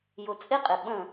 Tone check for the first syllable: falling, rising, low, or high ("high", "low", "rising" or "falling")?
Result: low